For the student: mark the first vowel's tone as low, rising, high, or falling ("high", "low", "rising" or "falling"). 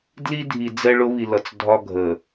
high